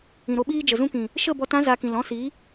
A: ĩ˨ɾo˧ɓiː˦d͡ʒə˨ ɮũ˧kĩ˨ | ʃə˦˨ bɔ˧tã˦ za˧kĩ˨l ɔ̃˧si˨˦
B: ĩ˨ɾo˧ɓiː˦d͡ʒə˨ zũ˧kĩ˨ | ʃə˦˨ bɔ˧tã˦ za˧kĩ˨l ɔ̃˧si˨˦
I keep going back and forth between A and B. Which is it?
B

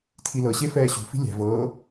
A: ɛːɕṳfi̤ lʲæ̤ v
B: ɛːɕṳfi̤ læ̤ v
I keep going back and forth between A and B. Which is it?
A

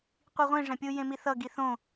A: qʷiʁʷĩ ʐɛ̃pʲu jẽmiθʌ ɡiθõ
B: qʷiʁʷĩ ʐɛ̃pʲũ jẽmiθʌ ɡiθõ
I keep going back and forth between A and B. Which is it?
A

